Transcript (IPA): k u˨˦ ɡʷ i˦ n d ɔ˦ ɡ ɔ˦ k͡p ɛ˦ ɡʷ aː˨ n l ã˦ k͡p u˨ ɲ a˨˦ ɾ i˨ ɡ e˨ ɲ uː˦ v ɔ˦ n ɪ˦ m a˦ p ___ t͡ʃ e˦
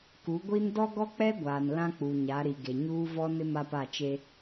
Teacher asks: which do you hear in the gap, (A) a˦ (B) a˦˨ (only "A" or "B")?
B